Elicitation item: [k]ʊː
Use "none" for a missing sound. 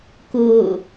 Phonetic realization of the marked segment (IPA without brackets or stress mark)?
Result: k